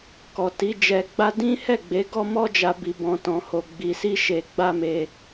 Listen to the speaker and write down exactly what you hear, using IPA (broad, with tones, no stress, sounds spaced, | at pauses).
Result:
k ɔ˨ t i˨˦ d͡ʒ ɛ˧ ɡ͡b a˦ d ĩ˦ h ɛ˦˨ ɡ͡b e˨˦ ɡ ɔ˦ m ɔ˦ d͡ʒ a˧ b i˧ b ɔ̃˧ t ɔ̃˧ h o˧ ɡ͡b i˧ s i˦ ʃ e˧ ɡ͡b a˦ m e˧